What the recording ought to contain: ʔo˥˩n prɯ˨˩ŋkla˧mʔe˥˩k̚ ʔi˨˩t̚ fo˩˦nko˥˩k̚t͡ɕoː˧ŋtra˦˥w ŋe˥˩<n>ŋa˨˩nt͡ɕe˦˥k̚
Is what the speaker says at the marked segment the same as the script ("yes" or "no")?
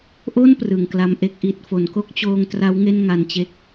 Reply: yes